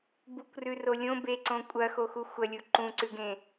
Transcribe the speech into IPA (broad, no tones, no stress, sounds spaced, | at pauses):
b u kʷ r ʉ r o lʲ õ b e ǀ õ kʷʼ ɐ x o x u xʷ ɐ lʲ u ǃ ũ ǀ ʉ ɡ ẽ